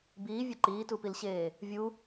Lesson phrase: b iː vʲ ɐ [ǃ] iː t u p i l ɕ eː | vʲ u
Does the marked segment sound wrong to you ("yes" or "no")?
no